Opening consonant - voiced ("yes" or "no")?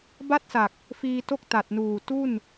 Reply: yes